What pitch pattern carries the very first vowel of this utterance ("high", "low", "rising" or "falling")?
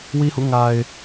high